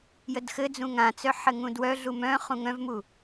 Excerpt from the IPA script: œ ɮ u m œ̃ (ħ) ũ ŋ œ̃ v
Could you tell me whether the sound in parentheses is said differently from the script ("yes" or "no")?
yes